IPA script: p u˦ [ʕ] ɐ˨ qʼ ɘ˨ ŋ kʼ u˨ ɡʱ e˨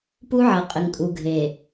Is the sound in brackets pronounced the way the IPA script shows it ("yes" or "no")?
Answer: yes